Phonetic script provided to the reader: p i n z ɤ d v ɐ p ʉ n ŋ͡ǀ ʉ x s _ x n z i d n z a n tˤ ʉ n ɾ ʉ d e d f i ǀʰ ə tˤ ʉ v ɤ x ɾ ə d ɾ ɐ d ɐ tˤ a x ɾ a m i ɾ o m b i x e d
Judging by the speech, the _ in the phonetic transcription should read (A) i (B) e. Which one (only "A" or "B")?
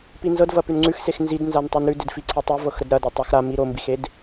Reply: B